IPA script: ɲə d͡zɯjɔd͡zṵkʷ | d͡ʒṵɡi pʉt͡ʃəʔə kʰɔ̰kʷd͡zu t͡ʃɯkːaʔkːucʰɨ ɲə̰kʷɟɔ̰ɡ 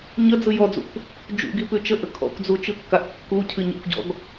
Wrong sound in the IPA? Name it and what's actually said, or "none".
none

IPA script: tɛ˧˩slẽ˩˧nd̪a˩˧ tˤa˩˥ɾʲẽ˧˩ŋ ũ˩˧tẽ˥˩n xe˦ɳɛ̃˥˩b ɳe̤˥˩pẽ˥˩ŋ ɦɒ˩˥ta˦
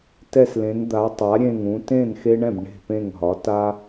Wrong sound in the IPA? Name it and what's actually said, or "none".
none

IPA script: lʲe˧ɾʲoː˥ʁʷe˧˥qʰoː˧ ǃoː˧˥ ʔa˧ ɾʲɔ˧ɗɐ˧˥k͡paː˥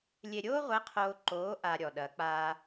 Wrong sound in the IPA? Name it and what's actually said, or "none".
none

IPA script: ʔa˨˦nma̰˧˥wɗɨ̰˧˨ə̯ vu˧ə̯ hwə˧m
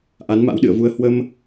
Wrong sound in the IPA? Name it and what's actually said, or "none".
none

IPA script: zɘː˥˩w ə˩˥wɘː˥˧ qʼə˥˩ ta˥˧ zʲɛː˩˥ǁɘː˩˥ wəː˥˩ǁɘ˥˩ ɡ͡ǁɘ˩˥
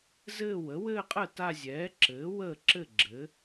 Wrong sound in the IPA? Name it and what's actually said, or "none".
none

